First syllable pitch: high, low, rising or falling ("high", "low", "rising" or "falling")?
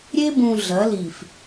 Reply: high